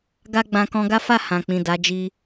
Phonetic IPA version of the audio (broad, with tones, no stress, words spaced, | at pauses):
ɡa˦ɡ͡bã˧ kɔ̃˧ɡa˦fa˦˨ hã˨k͡pĩ˨ da˨˦d͡ʒi˧